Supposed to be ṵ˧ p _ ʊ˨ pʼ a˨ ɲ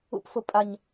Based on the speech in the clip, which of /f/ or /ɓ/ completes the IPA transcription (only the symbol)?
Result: f